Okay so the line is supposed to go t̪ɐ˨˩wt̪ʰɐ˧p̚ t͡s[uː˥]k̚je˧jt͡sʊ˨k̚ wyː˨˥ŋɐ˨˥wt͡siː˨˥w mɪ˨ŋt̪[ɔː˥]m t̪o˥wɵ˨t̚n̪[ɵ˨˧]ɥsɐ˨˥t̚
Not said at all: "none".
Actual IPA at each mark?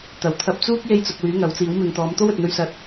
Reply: uː˥, ɔː˨˧, ɵ˧

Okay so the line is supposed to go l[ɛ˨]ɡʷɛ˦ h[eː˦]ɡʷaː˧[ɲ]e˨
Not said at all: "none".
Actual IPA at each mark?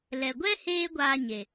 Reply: ɛ˨, eː˦, ɲ

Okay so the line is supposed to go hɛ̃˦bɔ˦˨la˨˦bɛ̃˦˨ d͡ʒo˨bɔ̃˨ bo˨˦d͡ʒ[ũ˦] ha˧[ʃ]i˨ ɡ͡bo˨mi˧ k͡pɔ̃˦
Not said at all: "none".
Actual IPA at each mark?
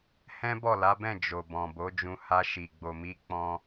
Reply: ũ˧, ʃ

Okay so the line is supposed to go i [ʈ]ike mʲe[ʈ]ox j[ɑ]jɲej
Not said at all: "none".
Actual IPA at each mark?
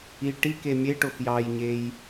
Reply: ʈ, ʈ, ɑ

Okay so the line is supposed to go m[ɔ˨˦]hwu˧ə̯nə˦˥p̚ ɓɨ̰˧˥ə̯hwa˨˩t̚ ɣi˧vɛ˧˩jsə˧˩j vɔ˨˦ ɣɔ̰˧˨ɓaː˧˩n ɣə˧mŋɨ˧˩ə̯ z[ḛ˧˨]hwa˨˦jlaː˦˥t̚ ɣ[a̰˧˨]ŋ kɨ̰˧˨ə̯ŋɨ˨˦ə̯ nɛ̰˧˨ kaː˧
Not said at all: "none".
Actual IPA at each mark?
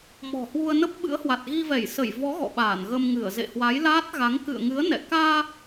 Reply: ɔ̤˨˩, ḛ˧˨, a˨˦

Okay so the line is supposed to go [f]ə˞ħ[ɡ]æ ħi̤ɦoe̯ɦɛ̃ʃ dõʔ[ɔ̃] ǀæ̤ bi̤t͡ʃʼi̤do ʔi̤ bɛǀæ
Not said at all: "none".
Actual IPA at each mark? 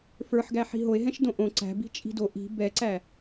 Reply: f, ɡ, õ

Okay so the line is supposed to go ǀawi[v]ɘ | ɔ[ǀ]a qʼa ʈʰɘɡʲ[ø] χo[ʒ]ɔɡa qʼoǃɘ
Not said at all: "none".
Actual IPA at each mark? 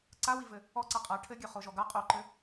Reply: v, ǀ, ø, ʒ

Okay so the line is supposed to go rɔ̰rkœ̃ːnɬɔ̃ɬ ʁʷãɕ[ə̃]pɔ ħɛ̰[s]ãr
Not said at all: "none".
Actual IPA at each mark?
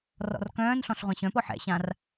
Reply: œ̃, ɕ

